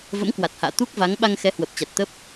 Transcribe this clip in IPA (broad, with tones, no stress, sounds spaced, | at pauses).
v ə̰˧˥ m k w a˨˩ t̚ h a̰ː˧˨ t̪ u˦˥ k̚ v a˨˦ ŋ ɓ a˧ ŋ x ɛ˨˦ h w ə˨˩ p̚ t͡ɕ a˨˩ t̚ t̪ ə˦˥ p̚